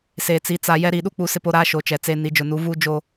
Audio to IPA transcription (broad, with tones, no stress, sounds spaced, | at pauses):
s eː˨ t͡s i˨˦ t͡s a˨ j ɛ˦ ɾ iː˨ ɗ u˦ k͡p u˨˦ s ɪ˦ p o˦ ɾ aː˦ ʃ o˨ t͡ʃ ɛ˨ t͡s e˦ n i˨ d͡ʒ ʊ˨ n u˨˦ v u˦ d͡ʒ o˦